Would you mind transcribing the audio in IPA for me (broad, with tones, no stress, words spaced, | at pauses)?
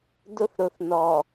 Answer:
dʊ˦θɾʊ˨θnɔ˨